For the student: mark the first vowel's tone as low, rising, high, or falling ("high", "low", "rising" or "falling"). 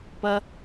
high